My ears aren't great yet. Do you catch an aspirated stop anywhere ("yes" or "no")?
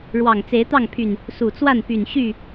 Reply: yes